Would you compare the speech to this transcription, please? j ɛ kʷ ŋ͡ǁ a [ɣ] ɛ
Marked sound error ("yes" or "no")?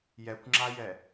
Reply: yes